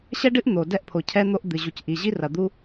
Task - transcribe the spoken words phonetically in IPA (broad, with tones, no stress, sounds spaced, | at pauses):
ɕ ɛ˥ ɖ ɨ˥ ʔ n̪ o˩ d ɛ˥ ʔ pʰ o˩ cʰ ɛ˥ n̪ o˥ ʔ d̪ ɨ˩ ʑ u˩ c ʔ i˩ ʑ i˥ r ɐ˩ d̪ u˥